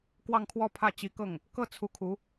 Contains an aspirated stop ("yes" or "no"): yes